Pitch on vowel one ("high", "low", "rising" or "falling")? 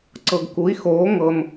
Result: low